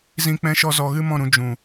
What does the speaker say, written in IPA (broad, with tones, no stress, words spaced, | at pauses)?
zĩ˧k͡pɛ̃˧ʃɔ˧ zɔ˧ɣɨ˦mɔ̃˦˨ɾũ˧ d͡ʒũ˨